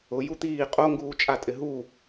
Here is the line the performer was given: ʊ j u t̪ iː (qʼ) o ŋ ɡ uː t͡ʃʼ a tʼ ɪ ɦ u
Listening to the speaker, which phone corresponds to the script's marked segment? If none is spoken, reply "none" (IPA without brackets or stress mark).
qʼ